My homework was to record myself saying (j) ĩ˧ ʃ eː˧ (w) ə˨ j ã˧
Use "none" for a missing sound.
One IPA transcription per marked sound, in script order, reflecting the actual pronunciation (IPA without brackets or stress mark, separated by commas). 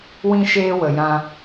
w, w